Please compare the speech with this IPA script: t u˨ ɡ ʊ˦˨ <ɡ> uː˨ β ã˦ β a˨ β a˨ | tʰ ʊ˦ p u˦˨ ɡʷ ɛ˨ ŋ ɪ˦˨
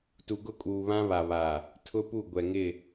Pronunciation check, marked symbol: incorrect: kʼ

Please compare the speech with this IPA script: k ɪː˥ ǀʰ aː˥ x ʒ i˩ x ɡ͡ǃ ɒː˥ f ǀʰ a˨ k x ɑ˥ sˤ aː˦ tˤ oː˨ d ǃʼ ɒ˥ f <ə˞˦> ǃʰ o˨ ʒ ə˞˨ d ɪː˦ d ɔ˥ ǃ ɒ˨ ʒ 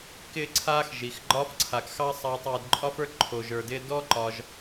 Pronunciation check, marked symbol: correct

